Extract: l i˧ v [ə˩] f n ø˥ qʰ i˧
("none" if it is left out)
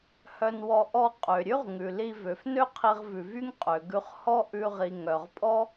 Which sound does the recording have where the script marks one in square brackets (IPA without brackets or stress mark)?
ø˩